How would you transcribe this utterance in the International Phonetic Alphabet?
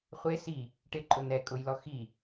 χʷ e s i | ʈ ɪ ǃʼ ʊ n ɛ kʼ ʊ j l ɔ x i

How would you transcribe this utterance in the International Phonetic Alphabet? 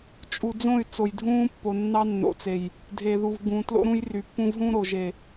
t͡ʃʼ u˨ d͡z õ˦˨ y̯ t͡s o˨ j dʱ ũː˦ pː o˨ nː ɑ˦ nː o̰˨ t͡s e˨ j | dʱ eː˨ ð u˨ v ɡ ũː˨ t l o̰˦ ɾ ũ˦ j r y˨ pː ũ˦ v ɦ ũ˦ ɾ o˨ ʒ e˨

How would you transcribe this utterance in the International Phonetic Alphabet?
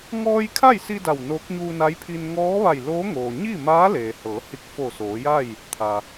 ŋ ɔː˧ j kʰ a˥˨ j s i˧ d a˧˩ w n oː˧˥ k̚ ɲ uː˧ n a˧˥ j pʰ iː˧ n ŋ ɔː˧˥ ʋ a˧˩ j l oː˧˥ ŋ oː˩ ɲ i˥˨ m aː˧˥ l eː˩ h ɤː˩˧ h i˧˩ k̚ f o˧˩ s oː˩˧ j a˥˨ j | t̪ʰ a˩

